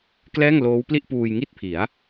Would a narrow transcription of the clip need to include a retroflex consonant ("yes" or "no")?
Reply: no